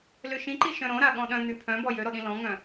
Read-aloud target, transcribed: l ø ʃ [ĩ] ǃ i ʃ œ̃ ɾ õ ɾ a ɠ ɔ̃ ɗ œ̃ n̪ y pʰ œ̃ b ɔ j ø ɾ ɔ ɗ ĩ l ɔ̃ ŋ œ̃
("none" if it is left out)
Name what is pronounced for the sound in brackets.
ĩ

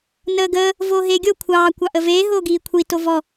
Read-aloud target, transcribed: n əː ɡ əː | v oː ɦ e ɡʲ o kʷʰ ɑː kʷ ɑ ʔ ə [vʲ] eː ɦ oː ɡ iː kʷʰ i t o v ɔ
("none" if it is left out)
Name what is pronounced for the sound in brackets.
v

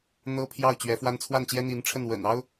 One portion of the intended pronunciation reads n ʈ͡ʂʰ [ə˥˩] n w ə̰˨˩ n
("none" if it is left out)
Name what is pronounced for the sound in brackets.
ə˥˩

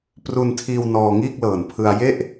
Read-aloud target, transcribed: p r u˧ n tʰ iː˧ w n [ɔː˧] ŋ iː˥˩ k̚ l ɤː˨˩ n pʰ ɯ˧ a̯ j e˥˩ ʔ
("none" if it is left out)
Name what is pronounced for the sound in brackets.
ɔː˧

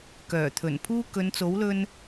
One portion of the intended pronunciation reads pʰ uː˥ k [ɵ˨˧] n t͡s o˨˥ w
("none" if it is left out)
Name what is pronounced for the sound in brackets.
ɵ˨˧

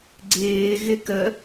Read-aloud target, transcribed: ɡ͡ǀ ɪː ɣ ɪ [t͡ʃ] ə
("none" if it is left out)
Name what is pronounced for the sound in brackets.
k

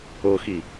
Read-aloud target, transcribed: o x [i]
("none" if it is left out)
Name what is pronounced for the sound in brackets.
i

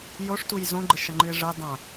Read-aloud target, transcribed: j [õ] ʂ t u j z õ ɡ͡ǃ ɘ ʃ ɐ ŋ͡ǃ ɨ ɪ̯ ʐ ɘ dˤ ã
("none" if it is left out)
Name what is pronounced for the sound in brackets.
o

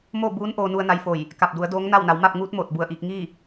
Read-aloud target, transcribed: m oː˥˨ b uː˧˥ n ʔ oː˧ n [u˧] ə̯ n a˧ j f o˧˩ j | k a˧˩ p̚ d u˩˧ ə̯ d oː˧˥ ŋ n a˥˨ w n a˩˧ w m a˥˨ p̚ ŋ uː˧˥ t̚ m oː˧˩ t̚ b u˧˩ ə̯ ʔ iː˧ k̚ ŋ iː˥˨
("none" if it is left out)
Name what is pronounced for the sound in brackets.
u˧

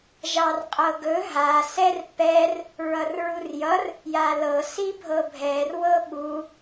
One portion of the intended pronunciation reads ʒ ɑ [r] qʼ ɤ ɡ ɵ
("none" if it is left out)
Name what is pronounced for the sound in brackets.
r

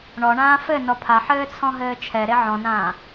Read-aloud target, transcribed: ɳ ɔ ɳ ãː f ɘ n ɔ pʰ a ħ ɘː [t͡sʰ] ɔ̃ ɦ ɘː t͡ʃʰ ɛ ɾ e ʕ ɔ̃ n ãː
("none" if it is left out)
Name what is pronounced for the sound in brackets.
t͡sʰ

